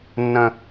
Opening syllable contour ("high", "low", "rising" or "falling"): high